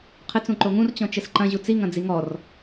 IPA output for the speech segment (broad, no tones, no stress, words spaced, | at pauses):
qʰɘt͡s ũǃoŋũr t͡ɕɔ̃t͡ʃɘsǃɐ̃ʑu t͡siŋɐ̃ d͡ziŋɔr